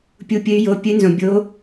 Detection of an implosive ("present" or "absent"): absent